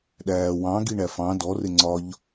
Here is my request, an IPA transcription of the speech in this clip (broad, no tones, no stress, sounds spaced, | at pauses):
ɗ æː w ɑ̃ ɡ i ɳ æ f ɑ̃ d ɔ r ɪ ŋ͡ǀ ɒ ʎ